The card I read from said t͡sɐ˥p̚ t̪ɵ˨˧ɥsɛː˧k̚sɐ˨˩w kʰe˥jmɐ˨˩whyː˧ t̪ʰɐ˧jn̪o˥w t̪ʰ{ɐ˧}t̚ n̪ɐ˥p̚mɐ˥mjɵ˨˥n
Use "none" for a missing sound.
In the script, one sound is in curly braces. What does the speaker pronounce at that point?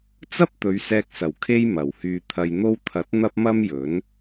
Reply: ɐ˨˥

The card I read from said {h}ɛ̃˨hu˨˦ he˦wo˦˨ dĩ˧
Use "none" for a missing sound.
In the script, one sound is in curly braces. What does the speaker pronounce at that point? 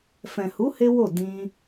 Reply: f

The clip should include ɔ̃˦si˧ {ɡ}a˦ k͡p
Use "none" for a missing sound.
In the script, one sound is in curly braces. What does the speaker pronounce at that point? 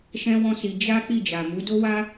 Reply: d͡ʒ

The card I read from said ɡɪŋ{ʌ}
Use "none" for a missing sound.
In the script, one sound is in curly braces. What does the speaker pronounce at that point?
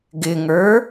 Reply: ə˞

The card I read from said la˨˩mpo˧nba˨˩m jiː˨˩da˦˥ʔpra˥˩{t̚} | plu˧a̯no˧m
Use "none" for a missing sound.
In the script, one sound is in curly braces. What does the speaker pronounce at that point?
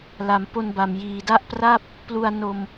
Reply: p̚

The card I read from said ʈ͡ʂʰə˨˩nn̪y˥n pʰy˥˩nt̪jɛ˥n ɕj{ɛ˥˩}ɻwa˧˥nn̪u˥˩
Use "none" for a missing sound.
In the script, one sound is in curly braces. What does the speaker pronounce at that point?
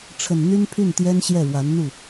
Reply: ɛ˥˩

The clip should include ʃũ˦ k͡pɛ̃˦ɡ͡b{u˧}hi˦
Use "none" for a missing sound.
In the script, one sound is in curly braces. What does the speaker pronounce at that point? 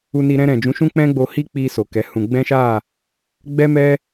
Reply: o˧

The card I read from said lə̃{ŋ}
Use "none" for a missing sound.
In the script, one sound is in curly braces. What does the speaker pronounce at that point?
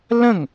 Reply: ŋ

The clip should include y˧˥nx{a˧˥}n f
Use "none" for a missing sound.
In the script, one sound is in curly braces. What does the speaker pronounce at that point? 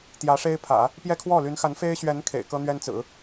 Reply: a˧˥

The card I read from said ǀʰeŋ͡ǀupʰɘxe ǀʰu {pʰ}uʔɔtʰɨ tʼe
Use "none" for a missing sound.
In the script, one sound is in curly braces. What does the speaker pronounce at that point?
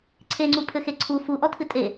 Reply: f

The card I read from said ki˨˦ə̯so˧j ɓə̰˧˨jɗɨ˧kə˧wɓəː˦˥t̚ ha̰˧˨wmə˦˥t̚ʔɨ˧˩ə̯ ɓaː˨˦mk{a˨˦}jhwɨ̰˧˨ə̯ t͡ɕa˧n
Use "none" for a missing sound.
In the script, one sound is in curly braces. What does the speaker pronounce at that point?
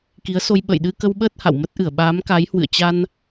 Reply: a˨˦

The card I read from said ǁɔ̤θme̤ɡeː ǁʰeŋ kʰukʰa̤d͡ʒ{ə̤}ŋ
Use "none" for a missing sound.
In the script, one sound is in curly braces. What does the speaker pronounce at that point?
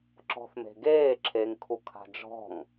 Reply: ɔ̤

